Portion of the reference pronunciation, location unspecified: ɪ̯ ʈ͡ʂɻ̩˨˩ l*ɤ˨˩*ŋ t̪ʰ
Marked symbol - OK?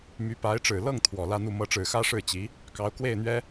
no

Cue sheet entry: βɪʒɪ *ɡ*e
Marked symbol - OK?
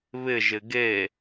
yes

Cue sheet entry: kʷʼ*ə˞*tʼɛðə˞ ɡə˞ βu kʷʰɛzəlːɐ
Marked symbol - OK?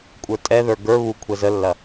yes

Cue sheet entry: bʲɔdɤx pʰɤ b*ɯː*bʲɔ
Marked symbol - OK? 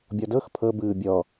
yes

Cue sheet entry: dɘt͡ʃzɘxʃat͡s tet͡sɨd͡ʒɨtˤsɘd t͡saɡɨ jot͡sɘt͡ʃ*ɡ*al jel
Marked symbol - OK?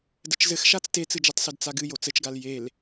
yes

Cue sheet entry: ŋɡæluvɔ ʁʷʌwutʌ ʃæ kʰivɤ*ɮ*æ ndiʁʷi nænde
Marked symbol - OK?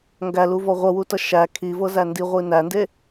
no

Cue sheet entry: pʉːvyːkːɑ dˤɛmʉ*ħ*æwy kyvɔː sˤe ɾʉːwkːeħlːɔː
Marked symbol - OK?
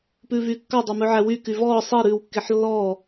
no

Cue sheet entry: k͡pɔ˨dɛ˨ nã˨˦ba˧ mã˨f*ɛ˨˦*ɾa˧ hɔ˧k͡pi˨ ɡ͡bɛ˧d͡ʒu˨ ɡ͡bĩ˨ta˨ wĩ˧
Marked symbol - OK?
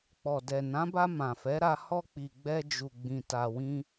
yes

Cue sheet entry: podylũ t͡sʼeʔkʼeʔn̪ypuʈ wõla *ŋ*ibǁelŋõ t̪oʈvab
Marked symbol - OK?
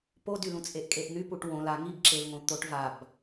yes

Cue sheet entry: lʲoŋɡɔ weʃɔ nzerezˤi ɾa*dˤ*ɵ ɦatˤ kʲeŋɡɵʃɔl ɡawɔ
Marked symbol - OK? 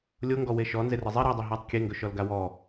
yes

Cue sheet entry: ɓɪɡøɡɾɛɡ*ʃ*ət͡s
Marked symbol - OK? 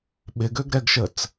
yes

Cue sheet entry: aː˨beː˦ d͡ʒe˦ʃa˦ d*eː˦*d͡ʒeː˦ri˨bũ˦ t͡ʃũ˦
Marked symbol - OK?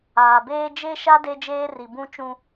no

